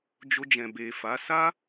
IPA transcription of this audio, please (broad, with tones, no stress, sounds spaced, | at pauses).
d͡ʒ o˧ d͡ʒ ɛ̃˨ b e˨ f a˨˦ s a˦